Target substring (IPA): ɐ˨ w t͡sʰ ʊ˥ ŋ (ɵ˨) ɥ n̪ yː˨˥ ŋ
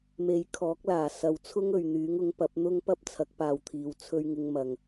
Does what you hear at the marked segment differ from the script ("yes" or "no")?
no